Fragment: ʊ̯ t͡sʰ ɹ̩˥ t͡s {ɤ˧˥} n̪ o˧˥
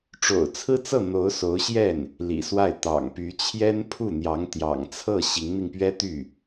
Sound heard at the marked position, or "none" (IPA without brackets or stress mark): ɤ˥˩